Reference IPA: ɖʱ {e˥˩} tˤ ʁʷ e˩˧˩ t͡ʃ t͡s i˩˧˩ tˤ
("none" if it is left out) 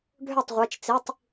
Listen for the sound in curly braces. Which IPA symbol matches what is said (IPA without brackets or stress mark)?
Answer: ø˥˩